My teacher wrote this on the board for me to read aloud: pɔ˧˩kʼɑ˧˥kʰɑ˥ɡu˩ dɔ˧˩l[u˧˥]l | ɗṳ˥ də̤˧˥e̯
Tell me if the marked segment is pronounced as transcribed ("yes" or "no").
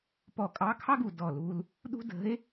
no